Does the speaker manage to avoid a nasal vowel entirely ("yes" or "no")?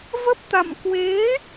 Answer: yes